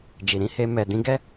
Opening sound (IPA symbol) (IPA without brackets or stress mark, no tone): d͡ʒ